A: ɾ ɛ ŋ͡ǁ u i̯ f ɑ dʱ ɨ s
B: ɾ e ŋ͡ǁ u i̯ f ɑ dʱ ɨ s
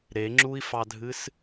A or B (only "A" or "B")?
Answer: B